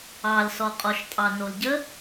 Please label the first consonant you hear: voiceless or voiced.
voiced